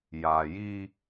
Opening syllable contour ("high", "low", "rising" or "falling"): low